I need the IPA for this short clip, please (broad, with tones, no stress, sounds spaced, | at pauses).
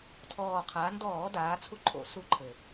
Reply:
tʰ ɔː˨˩ qʰ a˩˧ n d ɔː˧˩˧ d aː˩˧ t͡sʰ u˦ ǃʼ o̰˧˩˧ s u˦ ǃʰ ɘ˨˩